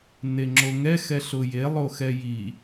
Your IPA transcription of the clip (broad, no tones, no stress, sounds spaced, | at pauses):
n e ŋ͡ǁ o ŋ ɛ x ɛ ɬ ʊ j e lˠ o x ɛ j i